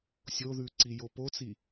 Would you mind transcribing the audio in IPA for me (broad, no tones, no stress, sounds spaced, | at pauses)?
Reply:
sʲ o ð ʉ ǀ i j o p o t͡s i